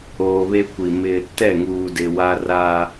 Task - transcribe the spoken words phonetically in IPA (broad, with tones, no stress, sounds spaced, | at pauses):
oː˨ β eː˦ kʷ i˨ m ɪ˦ | t ɛ˦˨ ŋ uː˨ d ɪ˨ w a˦ r a˦